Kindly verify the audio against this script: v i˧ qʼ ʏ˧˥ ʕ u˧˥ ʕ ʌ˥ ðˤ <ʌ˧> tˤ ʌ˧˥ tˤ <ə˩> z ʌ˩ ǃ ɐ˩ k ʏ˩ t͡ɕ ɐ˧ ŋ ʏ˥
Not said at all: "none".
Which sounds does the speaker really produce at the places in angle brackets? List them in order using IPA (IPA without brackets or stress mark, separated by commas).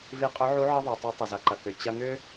ʌ˩, ə˩